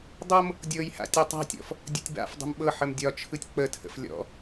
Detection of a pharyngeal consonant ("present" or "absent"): present